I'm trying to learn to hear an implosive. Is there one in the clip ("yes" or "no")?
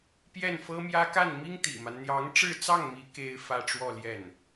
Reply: no